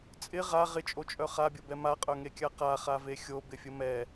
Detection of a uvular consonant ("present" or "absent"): present